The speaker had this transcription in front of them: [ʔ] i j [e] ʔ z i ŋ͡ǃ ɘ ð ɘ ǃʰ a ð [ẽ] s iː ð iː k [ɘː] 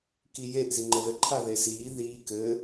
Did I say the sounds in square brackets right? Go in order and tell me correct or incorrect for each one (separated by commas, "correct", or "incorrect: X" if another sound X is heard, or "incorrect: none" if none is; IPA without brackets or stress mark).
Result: incorrect: k, correct, incorrect: e, correct